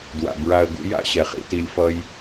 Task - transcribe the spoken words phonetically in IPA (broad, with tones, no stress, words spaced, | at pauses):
dwa̰˨ bɹa˨ə̯ɡṵ˧ ja̰˦ɕɛ˨χḭ˧ ti˧lʲfʌ˦j